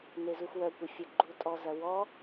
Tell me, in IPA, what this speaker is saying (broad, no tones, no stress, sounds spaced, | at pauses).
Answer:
n e z u x w œ kʷ ɪ fʲ ə ɡ͡ǃ u tʼ ɔ z ɐ w ɔ